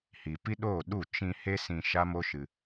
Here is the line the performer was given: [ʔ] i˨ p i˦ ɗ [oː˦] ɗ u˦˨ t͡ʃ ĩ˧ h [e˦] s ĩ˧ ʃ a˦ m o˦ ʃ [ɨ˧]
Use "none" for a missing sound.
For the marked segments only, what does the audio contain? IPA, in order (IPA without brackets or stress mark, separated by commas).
h, oː˦˨, e˦, ɨ˧